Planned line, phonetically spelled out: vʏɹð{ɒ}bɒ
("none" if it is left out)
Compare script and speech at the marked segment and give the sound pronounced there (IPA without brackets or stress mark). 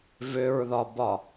ɒ